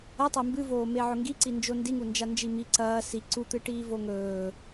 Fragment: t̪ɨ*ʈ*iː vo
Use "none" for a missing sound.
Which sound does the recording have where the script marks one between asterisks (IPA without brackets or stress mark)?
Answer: ʈ